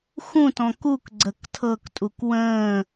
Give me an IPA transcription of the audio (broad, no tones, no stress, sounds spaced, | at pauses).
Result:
x ũ t ɔ̃ k u k ɡ͡ǀ ə k tʰ ɤ k tʼ u k w ə̃ː